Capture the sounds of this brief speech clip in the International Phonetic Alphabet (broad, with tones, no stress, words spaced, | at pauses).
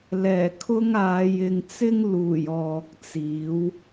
lɛː˨˩kʰʊ˥ŋaː˨˧j ɪ˨ŋ t͡sɪ˥ŋ luː˨˩j ɔː˨k̚t͡siː˨˥w